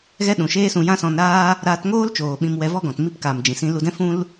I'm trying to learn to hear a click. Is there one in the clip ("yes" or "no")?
no